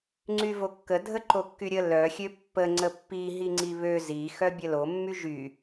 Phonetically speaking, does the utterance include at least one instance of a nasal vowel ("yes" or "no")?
no